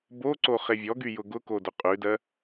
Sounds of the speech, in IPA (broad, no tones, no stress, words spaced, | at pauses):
boǀo χevʲɔɡy jʊɡʊko dʊqʼʉdɜ